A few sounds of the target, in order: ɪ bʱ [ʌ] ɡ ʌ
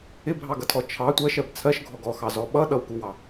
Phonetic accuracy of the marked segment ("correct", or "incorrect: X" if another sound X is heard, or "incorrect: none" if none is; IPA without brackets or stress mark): incorrect: ɑ